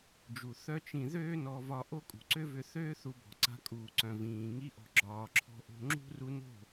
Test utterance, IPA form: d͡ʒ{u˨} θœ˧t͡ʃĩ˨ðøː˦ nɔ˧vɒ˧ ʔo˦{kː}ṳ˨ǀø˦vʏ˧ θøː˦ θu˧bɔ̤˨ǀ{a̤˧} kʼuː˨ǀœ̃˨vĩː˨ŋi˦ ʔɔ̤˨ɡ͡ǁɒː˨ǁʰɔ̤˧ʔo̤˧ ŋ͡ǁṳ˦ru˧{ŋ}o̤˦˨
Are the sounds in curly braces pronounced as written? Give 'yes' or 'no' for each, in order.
yes, no, yes, no

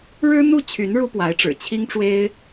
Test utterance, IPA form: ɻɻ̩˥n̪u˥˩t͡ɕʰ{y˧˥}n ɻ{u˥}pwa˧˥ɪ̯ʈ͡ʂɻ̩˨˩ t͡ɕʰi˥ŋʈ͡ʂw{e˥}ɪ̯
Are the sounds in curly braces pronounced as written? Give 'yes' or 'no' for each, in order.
yes, yes, yes

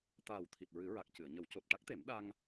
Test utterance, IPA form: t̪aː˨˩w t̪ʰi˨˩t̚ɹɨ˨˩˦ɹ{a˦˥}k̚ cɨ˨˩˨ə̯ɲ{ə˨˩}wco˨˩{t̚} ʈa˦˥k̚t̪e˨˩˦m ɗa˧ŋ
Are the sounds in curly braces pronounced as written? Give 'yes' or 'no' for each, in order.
no, no, yes

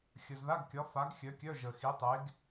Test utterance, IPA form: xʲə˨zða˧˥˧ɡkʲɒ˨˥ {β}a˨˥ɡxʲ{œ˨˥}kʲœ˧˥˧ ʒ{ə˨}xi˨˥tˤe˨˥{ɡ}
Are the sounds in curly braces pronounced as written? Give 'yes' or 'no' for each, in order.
no, yes, yes, yes

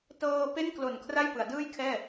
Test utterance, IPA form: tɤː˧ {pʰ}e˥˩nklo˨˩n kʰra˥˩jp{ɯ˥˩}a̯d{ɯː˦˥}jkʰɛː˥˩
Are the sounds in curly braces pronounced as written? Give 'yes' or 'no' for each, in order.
no, no, no

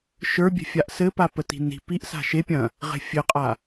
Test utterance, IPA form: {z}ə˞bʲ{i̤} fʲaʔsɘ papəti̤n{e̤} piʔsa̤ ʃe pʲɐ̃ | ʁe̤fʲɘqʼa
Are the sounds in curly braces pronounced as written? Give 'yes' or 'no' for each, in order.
no, no, no

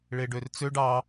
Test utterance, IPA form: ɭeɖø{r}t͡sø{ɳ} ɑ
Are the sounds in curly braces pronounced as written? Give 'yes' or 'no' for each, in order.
yes, no

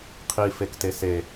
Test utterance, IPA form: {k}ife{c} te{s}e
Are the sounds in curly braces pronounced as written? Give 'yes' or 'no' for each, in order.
no, no, yes

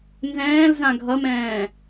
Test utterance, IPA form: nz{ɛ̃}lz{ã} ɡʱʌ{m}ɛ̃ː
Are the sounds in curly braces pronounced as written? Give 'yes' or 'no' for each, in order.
no, yes, yes

